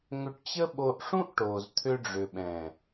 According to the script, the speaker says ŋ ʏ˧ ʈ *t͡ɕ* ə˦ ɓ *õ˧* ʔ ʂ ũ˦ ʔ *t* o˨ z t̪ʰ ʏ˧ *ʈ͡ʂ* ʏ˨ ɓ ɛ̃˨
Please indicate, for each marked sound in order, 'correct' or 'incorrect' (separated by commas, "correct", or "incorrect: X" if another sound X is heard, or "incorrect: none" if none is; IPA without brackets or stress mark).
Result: correct, incorrect: o˧, incorrect: ʈ, incorrect: ɖ͡ʐ